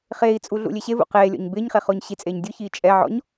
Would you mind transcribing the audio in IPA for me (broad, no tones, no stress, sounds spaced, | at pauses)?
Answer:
χ eː i̯ t͡sʼ u ɮ ṵ lʲ e ɕ e v ṵ q eː lʲ ɔ̰ ɲ b ɪː ɲ χ e χ ʊː ɲ ɕ i t͡sʼ eː ɲ dʲ ʊ ç iː t͡ʃʼ ɛ ʕ ɔ̰ ɲ